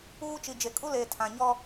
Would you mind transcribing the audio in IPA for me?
uː˦ t͡ʃ i˨ d͡ʒ e˨ kʼ u˦ l eː˨ tʰ ã˨ ɲ ɔ˦

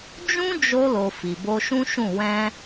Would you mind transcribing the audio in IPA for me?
d͡ʒ ũ˦ d͡ʒ o˧ l o˨ f i˨ b o˧ ʃ ũ˦ ʃ ũ˦˨ w ɛ̃˧

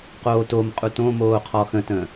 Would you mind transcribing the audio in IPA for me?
q oː t o m qʼ u t õ m oː qʰ ɔ x ə̃ t ə̃ː

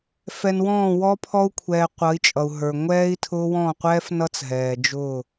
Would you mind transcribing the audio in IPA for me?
f ɛ˨ n w ɔ̃ː˦˨ w ɔ˦ pʰ ɔ˦ u̯ kʷʰ ɛː˨ qʷ ʌ˨˦ i̯ t͡ʃʼ ʌ˨ u̯ ɦ ə˞˨ ŋʷ ɛː˦ i̯ tʰ ʊː˦ w ɔ̃˦˨ qʷ ɛː˦ f n ʌ˦ t͡s ɦ ɛː˨ d͡ʒ ʊː˦˨

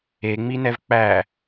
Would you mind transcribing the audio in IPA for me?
e ŋ͡m i n ɛ v k͡p æ

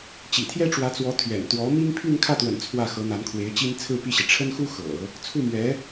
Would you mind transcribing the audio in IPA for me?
t͡ɕ ḭ˨˩ t̪ʰ j ɛ˥ ʈ͡ʂ w ä˧˥ t͡s w ɔ˧˥ t̪ʰ ɥ ɛ̰˨˩ n t̪ w ɔ˧˥ m i˥ ŋ pʰ y˥˧ n kʰ ä˥˩ t̪ w ə̰˨˩ n t͡sʰ w ä˥˩ x ɤ˧˥ n̪ a˧˥ n kʰ w e˧˥ ɪ̯ t͡ɕ i˥ n t͡sʰ ɹ̩˥˧ p i˥˩ ɕ i˩ ʈ͡ʂʰ ə˥ n x u˥ x ɤ̰˨˩˦ | t͡sʰ u˥˩ m ɥ ɛ˧˥

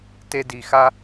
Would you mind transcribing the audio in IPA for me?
t e˧ d i˨ x a˦

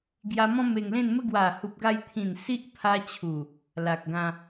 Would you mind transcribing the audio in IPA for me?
ɡ j a˧ m ɔ̃˦ m e˧ ŋ l ẽ˥˧ n m ə˦ ɡ w a˨˩ h u˨ p̚ ɡ a˧ j t̪ʰ ĩ˨˩ n s i˦ ʔ pʰ a˧ t͡ɕʰ u˨˩ | l a˨ k̚ ɡ ã˧

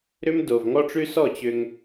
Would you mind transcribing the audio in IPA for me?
ɾ ʏ˦ m d o˨ v ŋ ɔ˦ ʈ͡ʂ ʉ˦ s ɔ˦˨ t͡ɕ ʏ˧ ŋ

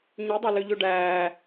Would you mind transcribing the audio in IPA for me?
ɲ i dˤ ɑ l ø ʎ ø ɖ æː

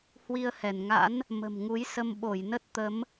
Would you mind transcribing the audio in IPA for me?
h w i˧ ə̯ h ɛ˧˩ n ŋ a̰˧˥ n | m ə̤˨˩ m ŋ u˨˦ j s ə˧ m ɓ o˧˩ j n ə˦˥ t̚ t̪ ə˨˦ m

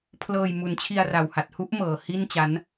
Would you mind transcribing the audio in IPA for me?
pʰ l ɤː˧ j m u˨˩ n t͡ɕʰ i˧ a̯ r a˨˩ w h a˨˩ t̚ h u˦˥ ʔ m ɤː˨˩ h i˥˩ n t͡ɕ a˦˥ n

